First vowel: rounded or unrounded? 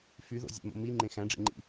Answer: rounded